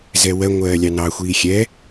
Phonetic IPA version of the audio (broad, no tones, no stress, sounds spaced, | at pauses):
z ɛ w ɜ ŋʷ ɜː lʲ ɑ n ɑ xʷ iː xʲ ɛ